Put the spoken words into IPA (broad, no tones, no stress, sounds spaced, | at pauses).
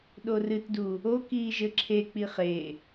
ɗ o r ɨ t d u | o k iː ʒ ɘ ǁʰ e k͡p i χ e